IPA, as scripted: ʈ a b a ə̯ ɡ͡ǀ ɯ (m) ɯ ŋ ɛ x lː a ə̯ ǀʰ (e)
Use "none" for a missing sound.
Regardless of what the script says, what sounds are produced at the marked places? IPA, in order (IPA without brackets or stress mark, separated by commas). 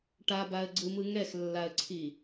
m, i